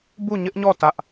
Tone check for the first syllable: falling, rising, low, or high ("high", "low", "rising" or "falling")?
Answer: falling